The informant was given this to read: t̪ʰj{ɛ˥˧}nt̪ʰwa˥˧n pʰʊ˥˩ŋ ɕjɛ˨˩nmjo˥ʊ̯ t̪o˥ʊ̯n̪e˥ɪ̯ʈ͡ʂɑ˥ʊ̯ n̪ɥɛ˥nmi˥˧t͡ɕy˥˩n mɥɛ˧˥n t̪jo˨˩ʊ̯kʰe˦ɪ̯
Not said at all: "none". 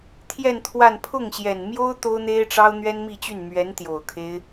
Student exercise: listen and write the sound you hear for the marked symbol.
ɛ˥˧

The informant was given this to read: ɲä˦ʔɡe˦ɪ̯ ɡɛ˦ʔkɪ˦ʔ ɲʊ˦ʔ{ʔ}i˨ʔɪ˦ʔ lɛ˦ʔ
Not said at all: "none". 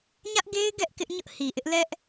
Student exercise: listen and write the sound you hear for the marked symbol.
h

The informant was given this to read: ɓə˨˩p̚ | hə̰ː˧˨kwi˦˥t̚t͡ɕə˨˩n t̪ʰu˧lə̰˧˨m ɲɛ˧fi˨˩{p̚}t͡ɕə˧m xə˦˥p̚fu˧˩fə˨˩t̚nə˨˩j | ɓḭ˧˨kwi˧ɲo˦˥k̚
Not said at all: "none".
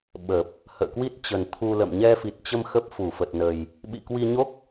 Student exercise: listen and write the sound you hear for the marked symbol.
t̚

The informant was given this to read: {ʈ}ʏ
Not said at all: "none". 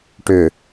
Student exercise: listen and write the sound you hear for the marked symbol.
ʈ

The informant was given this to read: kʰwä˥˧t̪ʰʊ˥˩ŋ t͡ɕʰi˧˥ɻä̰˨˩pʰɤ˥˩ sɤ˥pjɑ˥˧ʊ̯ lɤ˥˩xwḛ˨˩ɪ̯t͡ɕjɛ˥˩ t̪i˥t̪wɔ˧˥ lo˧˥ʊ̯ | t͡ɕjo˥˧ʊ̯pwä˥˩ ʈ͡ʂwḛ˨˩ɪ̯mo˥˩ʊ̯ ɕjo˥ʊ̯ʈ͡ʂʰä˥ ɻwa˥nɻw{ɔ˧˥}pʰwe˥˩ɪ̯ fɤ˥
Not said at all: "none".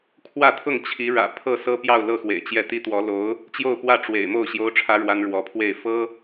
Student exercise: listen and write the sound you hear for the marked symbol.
ɔ˧˥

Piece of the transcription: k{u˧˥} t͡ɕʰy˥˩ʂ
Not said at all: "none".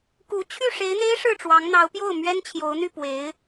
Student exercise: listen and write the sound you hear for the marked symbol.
u˧˥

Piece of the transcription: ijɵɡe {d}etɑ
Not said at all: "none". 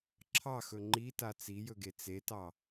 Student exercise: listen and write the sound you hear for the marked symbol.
t͡s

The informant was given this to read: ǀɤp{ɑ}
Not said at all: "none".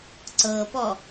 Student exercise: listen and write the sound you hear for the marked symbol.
ɔ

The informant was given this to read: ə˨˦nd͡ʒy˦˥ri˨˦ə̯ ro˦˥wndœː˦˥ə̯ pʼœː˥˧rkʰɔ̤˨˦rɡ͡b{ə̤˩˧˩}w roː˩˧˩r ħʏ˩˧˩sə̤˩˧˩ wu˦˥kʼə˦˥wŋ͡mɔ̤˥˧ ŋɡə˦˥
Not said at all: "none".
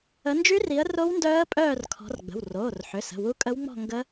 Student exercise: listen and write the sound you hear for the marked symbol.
ə̤˩˧˩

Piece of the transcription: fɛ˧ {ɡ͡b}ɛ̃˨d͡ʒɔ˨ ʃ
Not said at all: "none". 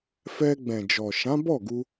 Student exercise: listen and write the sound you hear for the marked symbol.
ɡ͡b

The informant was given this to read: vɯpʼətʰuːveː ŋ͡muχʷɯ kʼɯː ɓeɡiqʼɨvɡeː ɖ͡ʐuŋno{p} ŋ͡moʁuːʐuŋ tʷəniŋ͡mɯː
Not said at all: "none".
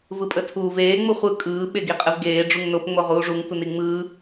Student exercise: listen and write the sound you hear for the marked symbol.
p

